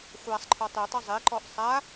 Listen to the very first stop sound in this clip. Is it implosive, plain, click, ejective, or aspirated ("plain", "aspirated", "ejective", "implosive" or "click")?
click